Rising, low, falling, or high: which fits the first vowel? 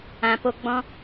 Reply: low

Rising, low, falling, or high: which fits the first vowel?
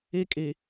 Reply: high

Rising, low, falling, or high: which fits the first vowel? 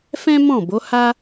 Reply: high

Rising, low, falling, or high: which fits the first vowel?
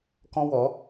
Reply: high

